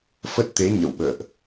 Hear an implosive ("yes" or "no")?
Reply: yes